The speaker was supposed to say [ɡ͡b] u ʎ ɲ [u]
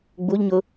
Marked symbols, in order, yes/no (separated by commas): yes, no